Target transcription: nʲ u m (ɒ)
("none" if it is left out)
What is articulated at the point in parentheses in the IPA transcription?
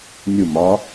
ɒ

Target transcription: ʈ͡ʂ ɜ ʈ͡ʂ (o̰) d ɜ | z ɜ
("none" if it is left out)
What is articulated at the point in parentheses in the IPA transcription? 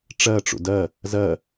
ṵ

